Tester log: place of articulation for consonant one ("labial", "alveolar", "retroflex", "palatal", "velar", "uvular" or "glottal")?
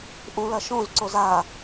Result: glottal